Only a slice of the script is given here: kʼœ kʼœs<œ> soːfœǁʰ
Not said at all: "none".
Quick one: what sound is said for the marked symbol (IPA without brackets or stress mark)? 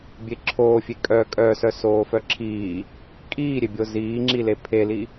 œ